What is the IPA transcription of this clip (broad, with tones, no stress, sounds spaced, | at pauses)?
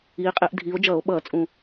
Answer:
iː˨˦ qʼ e˨˦ ʔ dʱ iː˨˦ o̯ d͡ʒ ʌː˧˩˧ o̯ ɓ ʌː˧˩˧ t͡sʼ ũ˨˩